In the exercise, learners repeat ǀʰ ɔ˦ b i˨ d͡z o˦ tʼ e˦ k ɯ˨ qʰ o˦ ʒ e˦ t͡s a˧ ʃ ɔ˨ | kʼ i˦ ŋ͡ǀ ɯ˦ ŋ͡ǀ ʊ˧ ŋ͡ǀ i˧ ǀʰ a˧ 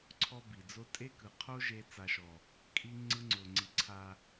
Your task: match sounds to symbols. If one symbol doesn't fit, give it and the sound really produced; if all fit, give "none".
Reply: none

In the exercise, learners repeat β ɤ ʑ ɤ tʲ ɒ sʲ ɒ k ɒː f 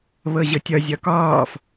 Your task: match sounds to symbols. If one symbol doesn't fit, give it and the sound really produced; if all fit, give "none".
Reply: sʲ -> zʲ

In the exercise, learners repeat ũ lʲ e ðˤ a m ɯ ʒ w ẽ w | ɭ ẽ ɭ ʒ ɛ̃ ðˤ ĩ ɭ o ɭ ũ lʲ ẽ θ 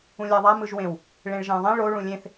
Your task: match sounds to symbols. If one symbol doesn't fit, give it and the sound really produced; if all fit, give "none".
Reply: e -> ɛ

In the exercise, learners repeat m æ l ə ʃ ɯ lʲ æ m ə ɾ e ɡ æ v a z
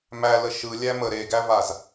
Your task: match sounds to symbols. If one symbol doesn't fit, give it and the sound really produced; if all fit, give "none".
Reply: none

